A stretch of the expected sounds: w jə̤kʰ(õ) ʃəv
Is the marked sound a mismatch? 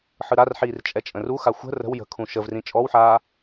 yes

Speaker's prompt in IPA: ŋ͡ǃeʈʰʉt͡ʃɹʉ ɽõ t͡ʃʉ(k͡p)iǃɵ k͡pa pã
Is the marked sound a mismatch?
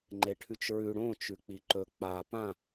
no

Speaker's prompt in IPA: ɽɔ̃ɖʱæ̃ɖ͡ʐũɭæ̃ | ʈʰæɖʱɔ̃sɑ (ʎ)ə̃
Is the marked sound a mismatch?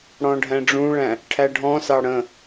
yes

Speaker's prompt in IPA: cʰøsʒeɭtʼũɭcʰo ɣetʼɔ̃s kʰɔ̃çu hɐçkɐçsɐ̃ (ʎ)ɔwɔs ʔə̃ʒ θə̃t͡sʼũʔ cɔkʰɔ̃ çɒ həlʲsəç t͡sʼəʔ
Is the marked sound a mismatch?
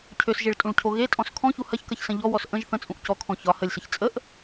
no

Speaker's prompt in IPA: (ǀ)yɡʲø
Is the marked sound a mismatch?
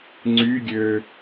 yes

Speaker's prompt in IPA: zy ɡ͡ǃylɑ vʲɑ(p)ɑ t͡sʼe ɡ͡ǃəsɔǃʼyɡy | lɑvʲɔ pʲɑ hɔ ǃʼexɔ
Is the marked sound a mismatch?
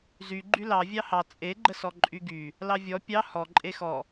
yes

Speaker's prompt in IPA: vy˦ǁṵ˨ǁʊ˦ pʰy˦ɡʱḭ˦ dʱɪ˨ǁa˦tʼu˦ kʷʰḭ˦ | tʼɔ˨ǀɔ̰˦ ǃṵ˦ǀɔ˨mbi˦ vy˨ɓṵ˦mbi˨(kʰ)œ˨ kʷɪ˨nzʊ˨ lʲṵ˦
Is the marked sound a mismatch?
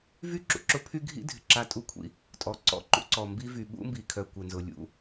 no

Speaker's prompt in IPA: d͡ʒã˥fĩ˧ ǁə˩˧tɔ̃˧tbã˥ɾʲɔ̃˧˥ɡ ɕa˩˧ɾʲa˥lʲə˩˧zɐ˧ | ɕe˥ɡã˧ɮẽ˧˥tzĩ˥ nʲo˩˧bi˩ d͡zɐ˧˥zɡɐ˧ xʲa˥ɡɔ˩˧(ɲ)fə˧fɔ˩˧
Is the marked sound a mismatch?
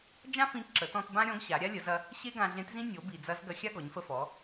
no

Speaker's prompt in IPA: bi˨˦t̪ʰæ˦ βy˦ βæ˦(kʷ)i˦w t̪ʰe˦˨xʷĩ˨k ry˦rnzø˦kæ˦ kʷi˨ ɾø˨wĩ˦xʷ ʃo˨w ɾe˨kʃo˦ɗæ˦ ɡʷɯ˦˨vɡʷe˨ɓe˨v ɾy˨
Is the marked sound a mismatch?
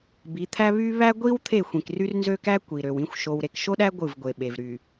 yes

